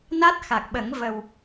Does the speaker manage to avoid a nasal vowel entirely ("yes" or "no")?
yes